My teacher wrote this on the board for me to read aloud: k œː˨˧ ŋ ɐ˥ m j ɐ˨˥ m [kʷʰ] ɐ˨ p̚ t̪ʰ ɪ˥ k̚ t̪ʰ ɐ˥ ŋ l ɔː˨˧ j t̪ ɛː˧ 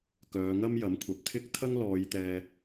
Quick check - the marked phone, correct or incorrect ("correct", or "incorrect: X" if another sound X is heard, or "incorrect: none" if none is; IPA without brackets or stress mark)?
correct